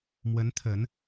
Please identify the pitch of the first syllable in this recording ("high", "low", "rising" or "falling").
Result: rising